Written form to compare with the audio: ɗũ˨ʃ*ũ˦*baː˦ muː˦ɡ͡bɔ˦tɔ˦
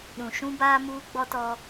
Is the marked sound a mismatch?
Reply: no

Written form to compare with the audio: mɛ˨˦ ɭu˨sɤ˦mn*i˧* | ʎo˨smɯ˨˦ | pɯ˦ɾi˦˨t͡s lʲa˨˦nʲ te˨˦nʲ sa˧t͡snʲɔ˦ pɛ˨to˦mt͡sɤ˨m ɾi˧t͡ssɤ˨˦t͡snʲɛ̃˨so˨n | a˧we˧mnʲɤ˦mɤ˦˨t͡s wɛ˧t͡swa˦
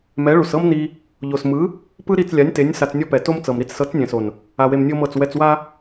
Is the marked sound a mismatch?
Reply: no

